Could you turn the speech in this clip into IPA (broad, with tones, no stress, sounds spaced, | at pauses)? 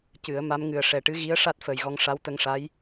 c ɨ˨˩˦ ə̯ m a˧˥ m ŋ ɨ˨˩ ə̯ ʂ ɛ˨˩ ʈ ɨ˧˥ ɣ i˧˥ ə̯ ʂ a˦˥ t̚ f əː˨˩ j ɣ ɔ˧ ŋ ʂ a˧˥ w t̪ ə˧ ŋ ʂ a˧˥ j